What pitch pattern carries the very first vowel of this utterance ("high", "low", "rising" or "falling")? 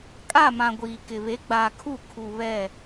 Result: falling